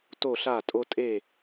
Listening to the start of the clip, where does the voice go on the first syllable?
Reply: falling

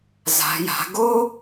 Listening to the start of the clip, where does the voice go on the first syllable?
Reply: rising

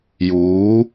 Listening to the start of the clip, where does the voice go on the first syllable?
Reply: rising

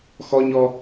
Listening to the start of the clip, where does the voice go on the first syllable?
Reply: high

